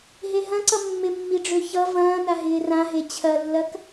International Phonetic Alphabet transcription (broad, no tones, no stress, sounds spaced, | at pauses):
ɦ e ɦ ɐ̃ ǀ ʌ mː ɪ mː i ɖ͡ʐ ø ç ʌ v ɐ̃ː n a ɦ ɪː r ã ɦ e t͡ɕʰ ɐ lː ɐ k